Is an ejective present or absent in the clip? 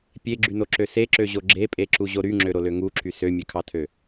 present